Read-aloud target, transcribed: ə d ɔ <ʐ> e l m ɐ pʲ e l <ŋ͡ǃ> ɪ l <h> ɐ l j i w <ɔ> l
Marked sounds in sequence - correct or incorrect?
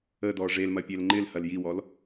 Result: correct, correct, correct, correct

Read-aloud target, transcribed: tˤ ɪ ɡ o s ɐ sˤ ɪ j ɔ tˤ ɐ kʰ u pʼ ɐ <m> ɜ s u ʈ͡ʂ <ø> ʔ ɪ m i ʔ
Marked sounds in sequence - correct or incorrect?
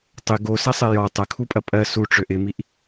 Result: incorrect, correct

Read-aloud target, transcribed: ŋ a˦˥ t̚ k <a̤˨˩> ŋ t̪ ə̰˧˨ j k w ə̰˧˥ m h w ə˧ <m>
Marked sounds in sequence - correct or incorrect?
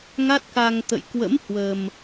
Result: incorrect, correct

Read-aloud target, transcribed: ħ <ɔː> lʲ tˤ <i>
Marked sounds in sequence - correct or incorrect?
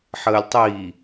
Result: incorrect, incorrect

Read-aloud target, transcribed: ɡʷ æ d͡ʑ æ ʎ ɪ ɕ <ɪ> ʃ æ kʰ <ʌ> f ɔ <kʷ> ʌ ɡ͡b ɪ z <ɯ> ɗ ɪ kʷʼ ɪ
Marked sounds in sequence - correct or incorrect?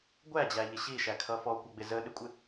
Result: incorrect, correct, correct, incorrect

